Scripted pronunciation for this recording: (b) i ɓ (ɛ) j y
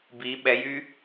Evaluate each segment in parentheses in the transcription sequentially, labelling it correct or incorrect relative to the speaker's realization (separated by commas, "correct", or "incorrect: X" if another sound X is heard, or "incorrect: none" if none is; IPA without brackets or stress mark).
correct, correct